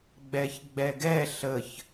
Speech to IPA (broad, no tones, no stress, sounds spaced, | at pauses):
ɡ͡b ɛ ç ɡ͡b ɛ ɡ ɛ ɬ ə ç